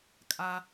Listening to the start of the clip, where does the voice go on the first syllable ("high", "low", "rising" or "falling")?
high